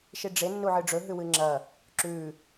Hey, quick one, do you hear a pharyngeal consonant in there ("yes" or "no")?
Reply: yes